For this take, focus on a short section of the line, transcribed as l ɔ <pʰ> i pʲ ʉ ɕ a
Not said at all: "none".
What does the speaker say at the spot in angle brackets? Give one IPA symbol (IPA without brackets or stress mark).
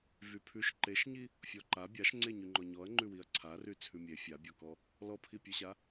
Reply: pʰ